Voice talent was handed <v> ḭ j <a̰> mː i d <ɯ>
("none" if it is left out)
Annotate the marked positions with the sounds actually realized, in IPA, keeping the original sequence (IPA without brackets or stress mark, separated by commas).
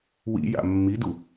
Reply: w, a̰, u